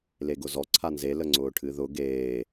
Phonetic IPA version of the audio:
leɡʊzɔ ǀʰanze ləŋ͡ǀʊːʈʰɨðʊ ɡeː

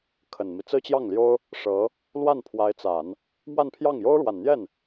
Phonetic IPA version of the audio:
kʰə˨˩nmi˦ t͡sɹ̩˥t͡ɕjɑ˥˩ŋljo˥ʊ̯ | ʂɤ˧˥ | lwa˥˩npʰwa˧˥ɪ̯t͡sa˨˩˦n | mwa˥˧npʰjɑ˥˩ŋ jo˥ʊ̯ɻwa˨˩nn̪jɛ˥˩n

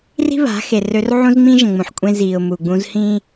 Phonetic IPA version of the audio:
ri̤˦βa̤˨˦ xe˨rø˦r ʕũ˦zŋ͡mĩ˦ʒə̃˨ ŋ͡mũ˨ħkʷʼẽ˦ ziː˨ʊ̯ mu˨ɡ͡bũ˦z hĩː˦

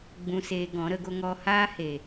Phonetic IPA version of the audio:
ɡ͡bũ˧seː˧ɡɔ̃˨˦ ɾə˧ɡo˦ ŋɔ˧haː˦ he˨

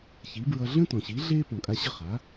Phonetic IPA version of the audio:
çi˩˥bɹʌ˧ ɮə̃˥tɔ̃˩ɕi˩˥ ɮeː˥pɔ̃˩kʼa˧ɕʌ˥˩ χa˩˥

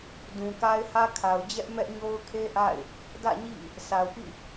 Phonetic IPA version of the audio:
dũ˨ka˦ɪ̯hä˦kʰa˨ʊ̯ d͡ʑɛ˦ʔ mɛ˦ʔɲo˦ʊ̯kʰe˦ʔa̰˦˨ɪ̯ | dä̰˦˨ɲḭ˦˨ | sʰa˨ʊ̯pḭ˦˨

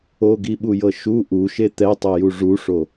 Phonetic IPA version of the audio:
oɡiɓujɤ ʃu ʔuʃe t̪ɛtˤɤju ʐuʂo

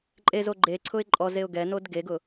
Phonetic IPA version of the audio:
ǃʼezo ɡ͡ǃeǀʰʊɪ̯ ǃʼɔzeʊ̯ ɡɛnod ɡeɡʊ

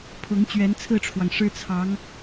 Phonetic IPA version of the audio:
pʰʊ˧˥ŋ t͡ɕɥɛ˧˥nt͡sʰɹ̩˥˩ʈ͡ʂʰwɑ˩ŋ ʂɻ̩˥t͡sʰɑ˧˥ŋ

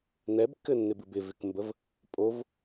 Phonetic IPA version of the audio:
nɛbkːɘnːɪbɨb ɪvɪkmbəv | pʼov

